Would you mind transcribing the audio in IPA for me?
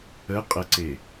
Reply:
ə qʼ ə ǀ e

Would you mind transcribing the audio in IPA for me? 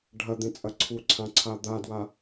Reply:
ɖʱ ɐ d̪ ẽ t͡sʼ ɐ ǀʰ u ǀʰ ã ǀʰ a d̪ a d w a

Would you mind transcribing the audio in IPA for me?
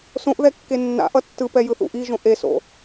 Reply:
s õ ʔ ð ɛ kː e nː a̰ ʔ ʌ tː ɯ p ɛ j ɯ θ ṵ ʔ i ʒ õ ʔ e s o̰

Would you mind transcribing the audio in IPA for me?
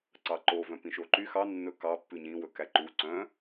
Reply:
ǀ ɑ ǃ o v œ̃ p ĩ ʃ o ǃ y x ɑ nː ɵ k ɑ pː ʉ ɲ ĩ w ɵ k æ ǃ u ǀ œ̃

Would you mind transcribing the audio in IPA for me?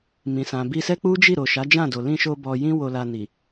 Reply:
m ĩ˨ s ã˨ b i˧ s ɛ˦ k͡p u˦ d͡ʒ i˦˨ ɾ o˨ ʃ a˨˦ d͡ʒ ã˦˨ d o˨ l ĩ˧ ʃ o˧ b ɔ˧ j ĩ˦ w o˧ l a˧ n i˨

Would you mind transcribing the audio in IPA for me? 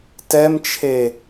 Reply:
t ɛ m t͡ʃʰ e

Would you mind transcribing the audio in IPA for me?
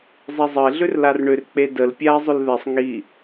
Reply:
zˤ e zˤ ə ɪ̯ ɮ ʏ r l a r ɳ ʏ r k͡p e d ə l pʲ a ɪ̯ zˤ ʏ l ð ɛ sˤ ŋ i

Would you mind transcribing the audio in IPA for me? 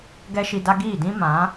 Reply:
ɡ ɛ˦ ʃ i˧ d a˦ ɡ iː˦˨ d ĩ˦ m ã˨˦

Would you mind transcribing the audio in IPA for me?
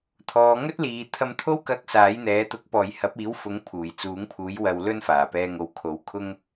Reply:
t̪ʰ ɔː˨˧ ŋ ɵ˥ t̚ l iː˨ t̪ʰ ɐ˧ m t̪ʰ o˥ w k ɐ˧ k̚ s aː˨˥ j n̪ ɛː˨˥ t̪ ʊ˨˥ k̚ p ɔː˨ j h ɐ˨˥ p̚ iː˨˥ w f ʊ˨˥ ŋ pʰ uː˨˩ j t͡s uː˨˥ ŋ pʰ uː˨˥ j w ɐ˧ w l ɵ˥ n f aː˨˩ p ɛː˧ ŋ o˨ w kʰ o˨˥ w kʰ ʊ˥ ŋ

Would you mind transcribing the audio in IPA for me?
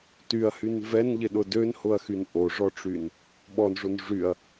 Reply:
t y ɐ̯ h y n v ɛ n ʎ ɪ ɗ ʊ d ø n h ʊ ɐ̯ x y n ʔ o ʐ ɔ ʈ͡ʂ y n | ɓ ɔ n ʐ o n ʐ y ɐ̯

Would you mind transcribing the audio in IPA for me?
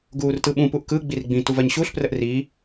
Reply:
ɡ uː r t ɯ ɓ ũ p u ʔ k ɯ ɡ͡b i r ɡ͡b ĩ t u v ɜ ɲ ɕ u ɬ p r ə ʔ r i

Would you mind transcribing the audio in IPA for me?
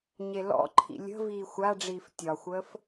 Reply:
ɲ e l ɔ̰ ǃʰ ḭ lʲ ə̤ v iː xʷ a ɖ͡ʐ iː f tʲ ɒ xʷ əː f

